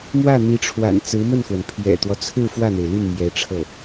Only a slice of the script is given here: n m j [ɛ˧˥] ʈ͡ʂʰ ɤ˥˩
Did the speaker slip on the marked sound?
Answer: no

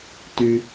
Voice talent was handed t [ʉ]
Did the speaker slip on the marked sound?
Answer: no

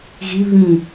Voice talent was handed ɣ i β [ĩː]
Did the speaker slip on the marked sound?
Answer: yes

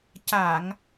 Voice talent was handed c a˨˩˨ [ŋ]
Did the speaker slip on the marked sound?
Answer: no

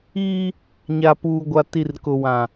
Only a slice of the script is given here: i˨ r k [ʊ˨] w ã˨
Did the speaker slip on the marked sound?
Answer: no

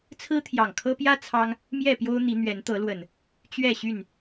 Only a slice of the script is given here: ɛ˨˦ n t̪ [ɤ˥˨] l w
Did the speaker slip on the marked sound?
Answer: yes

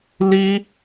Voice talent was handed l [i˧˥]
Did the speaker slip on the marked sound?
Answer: yes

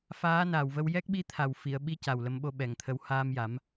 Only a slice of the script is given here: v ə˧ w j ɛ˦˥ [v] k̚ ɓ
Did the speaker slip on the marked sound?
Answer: yes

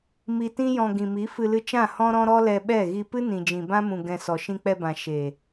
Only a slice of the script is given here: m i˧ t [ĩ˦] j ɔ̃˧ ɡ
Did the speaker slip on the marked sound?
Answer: no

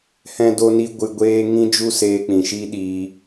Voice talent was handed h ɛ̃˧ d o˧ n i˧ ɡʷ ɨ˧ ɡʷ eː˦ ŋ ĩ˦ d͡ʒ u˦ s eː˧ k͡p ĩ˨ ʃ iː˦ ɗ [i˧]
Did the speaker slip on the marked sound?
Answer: yes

